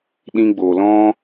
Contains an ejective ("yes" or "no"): no